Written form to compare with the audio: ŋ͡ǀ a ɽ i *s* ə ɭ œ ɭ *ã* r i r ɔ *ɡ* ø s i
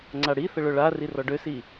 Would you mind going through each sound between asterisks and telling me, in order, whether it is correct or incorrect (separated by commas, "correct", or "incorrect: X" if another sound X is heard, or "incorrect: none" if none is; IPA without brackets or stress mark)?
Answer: incorrect: θ, incorrect: a, incorrect: ɖ